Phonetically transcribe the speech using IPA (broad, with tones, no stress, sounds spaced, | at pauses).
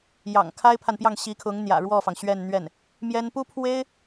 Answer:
j ɑ̰˨˩ ŋ kʰ a˥ ɪ̯ pʰ a˨ n p j ɑ˥˩ ŋ ɕ i˧˥ kʰ ʊ˧˥ ŋ n̪ j ä̰˨˩ ɻ w ɔ˥˩ f ɑ˩ ŋ ɕ ɥ ɛ˥˧ n n̪ ɥ ɛ˥˩ n | m j ɛ˥ n p u˥ pʰ w e˥ ɪ̯